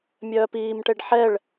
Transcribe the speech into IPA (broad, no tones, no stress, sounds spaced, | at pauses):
mʲ œː p iː m ʈ e ɖ ħ ɛ ɭ